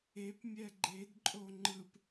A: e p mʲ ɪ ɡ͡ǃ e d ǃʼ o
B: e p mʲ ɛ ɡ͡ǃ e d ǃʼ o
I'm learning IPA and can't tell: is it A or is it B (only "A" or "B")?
B